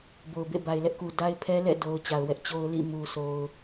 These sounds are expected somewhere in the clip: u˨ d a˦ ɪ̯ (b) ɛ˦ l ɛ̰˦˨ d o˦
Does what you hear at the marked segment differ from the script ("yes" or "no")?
yes